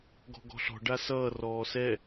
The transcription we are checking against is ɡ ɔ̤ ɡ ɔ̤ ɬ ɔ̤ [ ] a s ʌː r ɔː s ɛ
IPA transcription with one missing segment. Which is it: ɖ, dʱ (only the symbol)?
ɖ